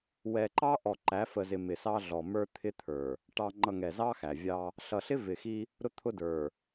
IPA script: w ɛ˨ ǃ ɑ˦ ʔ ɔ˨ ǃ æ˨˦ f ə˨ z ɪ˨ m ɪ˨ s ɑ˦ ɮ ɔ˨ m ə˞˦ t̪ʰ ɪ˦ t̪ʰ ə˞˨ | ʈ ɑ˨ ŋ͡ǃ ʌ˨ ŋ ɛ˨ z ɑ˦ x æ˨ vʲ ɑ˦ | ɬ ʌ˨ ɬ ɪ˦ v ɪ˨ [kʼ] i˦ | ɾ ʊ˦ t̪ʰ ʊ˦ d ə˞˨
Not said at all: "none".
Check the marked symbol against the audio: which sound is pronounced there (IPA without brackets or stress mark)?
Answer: x